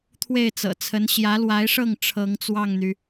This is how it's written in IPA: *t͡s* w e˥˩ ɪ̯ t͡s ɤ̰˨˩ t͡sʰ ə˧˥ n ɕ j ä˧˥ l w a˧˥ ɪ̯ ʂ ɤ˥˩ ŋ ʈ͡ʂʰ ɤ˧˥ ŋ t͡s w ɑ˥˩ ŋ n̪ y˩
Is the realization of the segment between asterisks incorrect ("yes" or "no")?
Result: yes